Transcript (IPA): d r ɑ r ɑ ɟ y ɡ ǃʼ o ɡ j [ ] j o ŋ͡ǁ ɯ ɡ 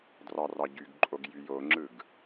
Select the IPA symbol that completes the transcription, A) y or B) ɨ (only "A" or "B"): A